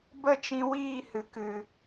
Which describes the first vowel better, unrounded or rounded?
unrounded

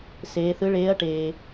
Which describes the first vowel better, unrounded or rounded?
unrounded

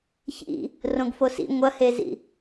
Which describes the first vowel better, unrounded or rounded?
unrounded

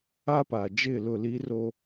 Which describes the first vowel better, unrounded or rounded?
unrounded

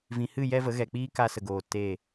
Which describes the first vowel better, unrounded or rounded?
unrounded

